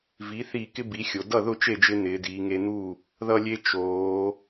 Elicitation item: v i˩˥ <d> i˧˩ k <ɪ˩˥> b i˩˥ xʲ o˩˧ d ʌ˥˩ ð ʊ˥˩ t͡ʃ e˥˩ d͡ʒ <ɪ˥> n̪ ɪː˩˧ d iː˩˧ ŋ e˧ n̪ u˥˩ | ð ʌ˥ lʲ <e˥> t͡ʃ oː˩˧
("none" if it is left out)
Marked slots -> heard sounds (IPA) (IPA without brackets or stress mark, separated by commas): θ, ɪ˥, ɪ˧, e˥